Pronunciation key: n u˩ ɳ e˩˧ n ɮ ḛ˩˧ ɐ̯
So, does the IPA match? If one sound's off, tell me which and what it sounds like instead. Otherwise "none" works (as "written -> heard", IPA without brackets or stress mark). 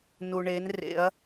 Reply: ɮ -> r